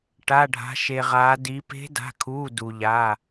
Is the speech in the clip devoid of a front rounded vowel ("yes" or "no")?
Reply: yes